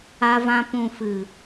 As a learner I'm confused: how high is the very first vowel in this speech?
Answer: low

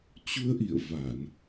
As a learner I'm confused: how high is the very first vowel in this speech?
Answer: high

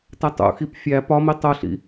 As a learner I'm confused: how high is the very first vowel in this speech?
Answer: low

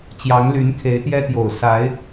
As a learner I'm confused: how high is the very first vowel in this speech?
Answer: low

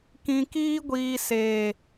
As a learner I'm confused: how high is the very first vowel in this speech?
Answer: high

